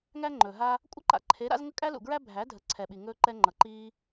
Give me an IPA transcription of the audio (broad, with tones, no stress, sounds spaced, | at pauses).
ŋ æ˦ ŋ͡ǃ ɵː˨ ɦ a˧ | kʷʼ ʌ˦ ǃ a̰˧ ǃʰ e˨˦ ɾ a̰˧ z ŋ ə˧ kʼ æ˦ l ṵ˨ ɡ ɹ æ˦ bʱ æ˨˦ dʱ ə˨˦ ǀʰ ɛ˨ ɓ i˨ ŋ ɵː˧ ǃ ɛ˧ ŋ͡ǃ ʌ˨ ǃ iː˧